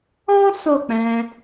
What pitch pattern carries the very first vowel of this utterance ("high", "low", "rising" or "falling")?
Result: high